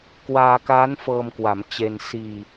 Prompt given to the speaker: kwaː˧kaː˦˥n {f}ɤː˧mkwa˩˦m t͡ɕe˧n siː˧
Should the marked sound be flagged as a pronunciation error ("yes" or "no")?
no